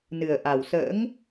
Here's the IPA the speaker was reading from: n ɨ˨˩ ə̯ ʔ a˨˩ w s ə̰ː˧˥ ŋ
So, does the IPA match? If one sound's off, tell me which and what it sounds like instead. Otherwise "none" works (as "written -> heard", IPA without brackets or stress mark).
none